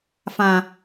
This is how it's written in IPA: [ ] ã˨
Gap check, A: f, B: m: A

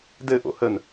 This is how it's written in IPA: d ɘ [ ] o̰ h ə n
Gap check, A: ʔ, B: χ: A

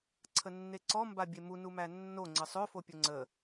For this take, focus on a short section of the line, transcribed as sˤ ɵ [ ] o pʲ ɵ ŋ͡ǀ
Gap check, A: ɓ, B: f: B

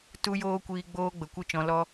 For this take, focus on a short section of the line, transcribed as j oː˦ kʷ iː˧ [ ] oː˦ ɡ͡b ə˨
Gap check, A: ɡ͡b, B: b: A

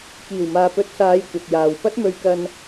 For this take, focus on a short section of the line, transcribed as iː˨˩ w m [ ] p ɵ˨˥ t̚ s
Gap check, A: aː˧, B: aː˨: B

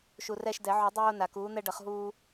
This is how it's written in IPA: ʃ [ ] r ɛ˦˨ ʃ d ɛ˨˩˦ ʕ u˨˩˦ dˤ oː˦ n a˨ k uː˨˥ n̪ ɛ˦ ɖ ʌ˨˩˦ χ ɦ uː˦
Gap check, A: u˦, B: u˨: B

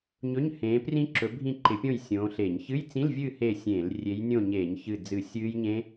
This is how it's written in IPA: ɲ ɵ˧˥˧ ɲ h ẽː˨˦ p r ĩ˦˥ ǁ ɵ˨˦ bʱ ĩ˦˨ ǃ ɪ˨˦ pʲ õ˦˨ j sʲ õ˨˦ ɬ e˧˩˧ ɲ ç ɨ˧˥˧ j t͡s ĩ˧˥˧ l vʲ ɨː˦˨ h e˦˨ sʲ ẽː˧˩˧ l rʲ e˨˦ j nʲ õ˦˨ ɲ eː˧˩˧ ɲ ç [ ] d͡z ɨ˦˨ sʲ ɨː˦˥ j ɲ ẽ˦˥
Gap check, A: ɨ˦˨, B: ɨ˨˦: A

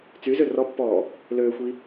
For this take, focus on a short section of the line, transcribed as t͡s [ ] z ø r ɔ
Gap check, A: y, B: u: A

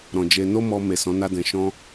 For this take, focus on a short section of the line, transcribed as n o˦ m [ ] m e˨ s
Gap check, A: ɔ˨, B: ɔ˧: B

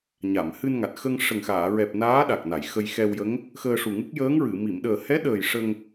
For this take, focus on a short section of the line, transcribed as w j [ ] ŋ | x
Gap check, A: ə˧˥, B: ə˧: A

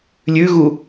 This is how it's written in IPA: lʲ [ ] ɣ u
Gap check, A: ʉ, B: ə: A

